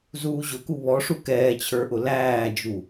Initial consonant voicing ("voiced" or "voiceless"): voiced